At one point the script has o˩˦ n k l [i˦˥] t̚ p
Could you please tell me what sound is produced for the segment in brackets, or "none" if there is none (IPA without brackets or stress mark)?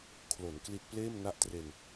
i˦˥